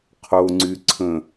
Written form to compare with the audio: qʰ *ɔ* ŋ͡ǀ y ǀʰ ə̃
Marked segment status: incorrect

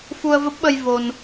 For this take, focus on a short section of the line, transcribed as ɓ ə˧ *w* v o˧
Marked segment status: incorrect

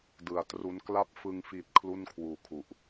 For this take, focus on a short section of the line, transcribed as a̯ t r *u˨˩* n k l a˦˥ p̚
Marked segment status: incorrect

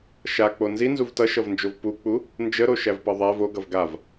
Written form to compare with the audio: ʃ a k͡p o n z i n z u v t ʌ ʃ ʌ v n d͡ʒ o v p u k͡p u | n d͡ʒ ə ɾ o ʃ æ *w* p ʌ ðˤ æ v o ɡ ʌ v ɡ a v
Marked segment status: incorrect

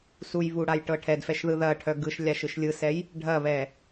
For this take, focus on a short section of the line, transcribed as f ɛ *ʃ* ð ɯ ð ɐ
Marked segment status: correct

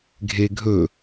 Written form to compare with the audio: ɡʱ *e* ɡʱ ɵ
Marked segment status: correct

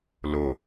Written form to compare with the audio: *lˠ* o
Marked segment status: incorrect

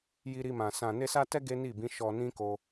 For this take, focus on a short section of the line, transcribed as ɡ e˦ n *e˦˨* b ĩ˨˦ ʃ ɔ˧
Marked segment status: incorrect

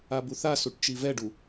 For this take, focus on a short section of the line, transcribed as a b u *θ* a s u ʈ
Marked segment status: correct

